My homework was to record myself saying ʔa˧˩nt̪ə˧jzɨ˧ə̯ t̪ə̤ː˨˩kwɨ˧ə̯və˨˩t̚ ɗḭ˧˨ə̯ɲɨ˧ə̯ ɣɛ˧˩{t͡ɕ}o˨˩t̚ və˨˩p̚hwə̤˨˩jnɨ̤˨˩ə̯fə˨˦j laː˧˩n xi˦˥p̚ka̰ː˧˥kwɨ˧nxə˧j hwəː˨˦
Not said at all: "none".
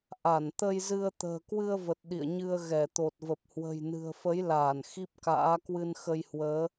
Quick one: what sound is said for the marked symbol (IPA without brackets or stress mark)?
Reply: t̪